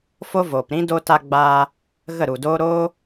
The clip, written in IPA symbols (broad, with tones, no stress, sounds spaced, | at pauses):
f o˦ v oː˨ p ɾ ĩ˦ d o˧ t a˧ ɡ͡b aː˧ | ɣ ə˦˨ ɾ u˨ d oː˦ ɾ oː˦